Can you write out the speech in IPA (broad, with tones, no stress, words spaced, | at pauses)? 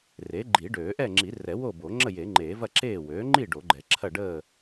re˩˥ ɡ͡ǃi˨˩˦ɖøː˨˩˦ʔɛ˥˨ ŋ͡ǁi˨˩˦rɛ˨˩˦ wo˥˨bo˨˩˦ ŋ͡ǁə˥˨je˨˩˦ŋ͡ǃeː˨˩˦vɐ˥˨ ǁeː˥˨ wøː˩˥ŋ͡ǃi˥˨ ɖo˨˩˦ɡ͡ǃɛ˨˩˦ ǁʰɐ˥˨ɖəː˥˨